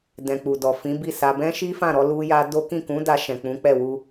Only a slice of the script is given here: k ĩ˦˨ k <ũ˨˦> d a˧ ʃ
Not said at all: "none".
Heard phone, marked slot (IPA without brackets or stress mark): ũ˨˦